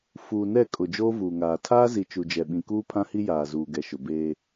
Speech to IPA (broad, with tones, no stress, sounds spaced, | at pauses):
f uː˨ n ɛ˦˨ kʼ ʊ˨ d͡ʒ oː˦ v uː˨ ŋ aː˨ tʰ aː˦ z i˨ t͡ʃ u˨ d͡ʒ ɛ˨ ɓ ĩ˨ k uː˦ pʰ ã˦ h i˦ j aː˨ z uː˨ ɡ ɛ˨ ʃ ʊ˨ b eː˦